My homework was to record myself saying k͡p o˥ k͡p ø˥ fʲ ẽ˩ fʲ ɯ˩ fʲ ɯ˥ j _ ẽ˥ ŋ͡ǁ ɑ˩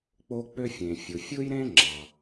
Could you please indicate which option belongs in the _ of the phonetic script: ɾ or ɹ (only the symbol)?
ɾ